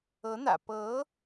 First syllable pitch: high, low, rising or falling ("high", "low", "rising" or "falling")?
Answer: rising